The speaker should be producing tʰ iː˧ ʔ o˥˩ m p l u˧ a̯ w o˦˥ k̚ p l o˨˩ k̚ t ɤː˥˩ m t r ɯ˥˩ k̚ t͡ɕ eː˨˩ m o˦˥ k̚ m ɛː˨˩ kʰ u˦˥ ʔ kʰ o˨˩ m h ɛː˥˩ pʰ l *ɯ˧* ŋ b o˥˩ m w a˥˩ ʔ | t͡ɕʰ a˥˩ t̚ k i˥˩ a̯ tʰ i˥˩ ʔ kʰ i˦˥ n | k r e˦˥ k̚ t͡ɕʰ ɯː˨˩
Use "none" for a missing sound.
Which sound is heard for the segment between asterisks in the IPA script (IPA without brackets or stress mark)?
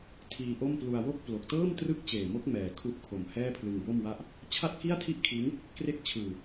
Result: ɯ˧